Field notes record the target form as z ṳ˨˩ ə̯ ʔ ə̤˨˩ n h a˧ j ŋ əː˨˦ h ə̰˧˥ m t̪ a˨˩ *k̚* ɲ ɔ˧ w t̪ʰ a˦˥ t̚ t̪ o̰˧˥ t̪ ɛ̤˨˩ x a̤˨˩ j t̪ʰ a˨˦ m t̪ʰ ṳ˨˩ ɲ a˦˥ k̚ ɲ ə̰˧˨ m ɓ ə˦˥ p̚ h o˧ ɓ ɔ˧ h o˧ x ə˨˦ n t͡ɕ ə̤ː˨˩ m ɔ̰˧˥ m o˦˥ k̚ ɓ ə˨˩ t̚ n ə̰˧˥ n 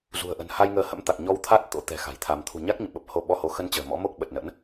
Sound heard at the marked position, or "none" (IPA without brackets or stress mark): k̚